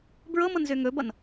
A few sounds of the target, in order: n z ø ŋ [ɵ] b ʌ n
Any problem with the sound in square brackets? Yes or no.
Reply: no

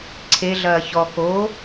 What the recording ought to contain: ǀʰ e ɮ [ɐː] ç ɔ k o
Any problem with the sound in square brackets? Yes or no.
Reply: no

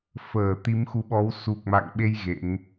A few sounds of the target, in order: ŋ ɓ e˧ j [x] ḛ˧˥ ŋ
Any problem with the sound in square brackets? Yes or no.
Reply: yes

